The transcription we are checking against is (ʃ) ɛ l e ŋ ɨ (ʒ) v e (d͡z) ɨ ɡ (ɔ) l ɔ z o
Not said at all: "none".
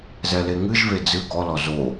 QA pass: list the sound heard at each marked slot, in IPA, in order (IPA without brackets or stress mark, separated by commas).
z, ʒ, d͡z, ɔ